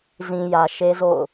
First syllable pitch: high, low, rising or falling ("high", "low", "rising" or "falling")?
low